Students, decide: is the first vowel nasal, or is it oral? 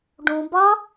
nasal